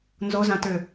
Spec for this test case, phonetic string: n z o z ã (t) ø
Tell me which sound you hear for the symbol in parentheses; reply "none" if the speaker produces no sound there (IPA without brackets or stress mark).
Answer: t